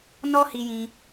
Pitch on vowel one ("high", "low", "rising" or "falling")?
high